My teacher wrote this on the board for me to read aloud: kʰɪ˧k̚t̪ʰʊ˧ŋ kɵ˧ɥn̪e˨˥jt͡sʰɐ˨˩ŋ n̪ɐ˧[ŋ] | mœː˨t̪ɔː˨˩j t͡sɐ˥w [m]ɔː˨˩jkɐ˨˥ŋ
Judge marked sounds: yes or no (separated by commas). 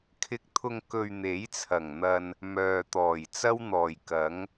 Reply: no, no